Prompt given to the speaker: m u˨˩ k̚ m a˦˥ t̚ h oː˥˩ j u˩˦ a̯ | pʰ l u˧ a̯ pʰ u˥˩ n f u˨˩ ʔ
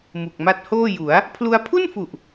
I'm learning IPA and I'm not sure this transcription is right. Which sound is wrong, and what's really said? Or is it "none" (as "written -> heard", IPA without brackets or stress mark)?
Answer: none